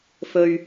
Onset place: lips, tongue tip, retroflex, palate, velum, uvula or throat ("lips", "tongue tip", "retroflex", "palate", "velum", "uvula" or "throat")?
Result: lips